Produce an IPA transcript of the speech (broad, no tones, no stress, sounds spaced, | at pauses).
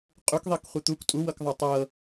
qʼ u k ðˤ i k χʷ i t̪ u k tʼ u w ɤ k ðˤ ɤ tˤ ɤ